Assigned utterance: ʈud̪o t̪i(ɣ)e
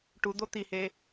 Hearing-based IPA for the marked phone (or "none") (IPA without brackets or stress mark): h